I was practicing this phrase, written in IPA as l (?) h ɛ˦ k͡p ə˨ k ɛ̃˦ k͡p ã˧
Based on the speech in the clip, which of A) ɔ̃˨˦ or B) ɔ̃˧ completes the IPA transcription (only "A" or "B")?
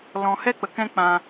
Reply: B